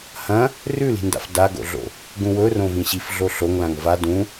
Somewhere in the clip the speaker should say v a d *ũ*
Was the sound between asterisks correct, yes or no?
yes